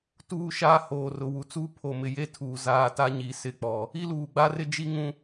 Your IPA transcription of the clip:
tuː˦ʃa˦ hoː˨rʊ˨ wu˨t͡suː˦pʰo˨mɪ˨ je˦tʰuː˨ zaː˦ ta˦ɲi˨sɪ˦˨k͡pɔ˨ | i˦luː˨ɡ͡ba˦ rɪ˦d͡ʒi˦ ŋũ˦

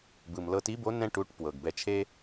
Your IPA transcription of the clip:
bɯ˩m lɤ˧ti˧˥bo˧˥ nɛ̃˥ʈu˧˥ʈ pwɤ˩ɡbɛ˧t͡ʃʰe˥

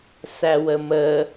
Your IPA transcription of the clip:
sæwəmə

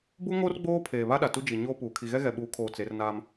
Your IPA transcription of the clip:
bu˦ŋo˦r ɡ͡boː˦pʰeː˨βa˦ɗa˨ tu˦d͡ʒi˨ɲoː˦ puː˨ kʰi˨ɣɛ˦ɣɛ˨ ɓuː˨˦kʰoː˨ t͡se˨˦rnaː˦m

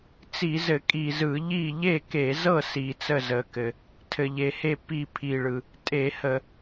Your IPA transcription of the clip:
t͡si˧˩˧zɘ˧˩˧ kʼi˨˩zɯ˧˩˧ʎi˥˨ ʎe˥˨ke˧˩˧zɤ˥˨ si˨˩t͡sə˥˨zə˨˩kɘ˨˩ | tʰɘ˨˩ʎe˨˩he˥˨ pi˥˨pʰi˨˩ɭɯ˨˩ | tʼe˧˩˧hə˧˩˧

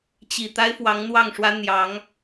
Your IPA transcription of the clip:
t͡ɕi˨˩ t̪a˥ɪ̯fwɑ˧˥ŋn̪wɑ˥˩ŋʂwä˥ n̪jɑ˧˥ŋ

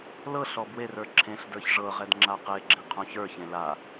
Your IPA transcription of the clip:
lɤɬ ɔbwerə˞ ǁʰẽɬdə˞ç ʐɤʁɛd ŋ͡ǁaqeɡ͡ǁẽ qʰõçə˞çẽ la

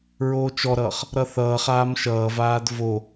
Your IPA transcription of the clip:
ɹoːt͡ʃɔɾʌːχ | ɾʌθʌːχaːm ʃʌːvaːd vo

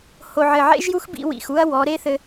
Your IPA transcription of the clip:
ho˨ʕɘ˨ʕḛ˦ʒju˦x bḭ˧ wḭ˨xu˦ɐ̯ wɔ˨˦ ɾe˦θɘ˧

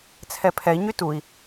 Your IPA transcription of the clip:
t͡sʰɛpʰɛi̯ɲy tui̯

